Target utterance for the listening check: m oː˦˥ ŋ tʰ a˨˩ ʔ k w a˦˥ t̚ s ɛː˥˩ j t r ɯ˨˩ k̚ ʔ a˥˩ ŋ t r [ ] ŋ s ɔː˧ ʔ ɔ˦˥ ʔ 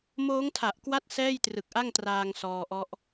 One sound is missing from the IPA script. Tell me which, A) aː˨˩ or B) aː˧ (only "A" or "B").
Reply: B